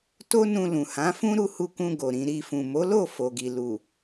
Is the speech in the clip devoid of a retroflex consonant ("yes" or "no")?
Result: yes